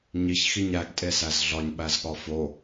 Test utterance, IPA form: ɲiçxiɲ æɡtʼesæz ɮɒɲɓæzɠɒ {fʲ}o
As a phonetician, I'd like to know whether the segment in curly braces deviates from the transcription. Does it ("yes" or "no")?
yes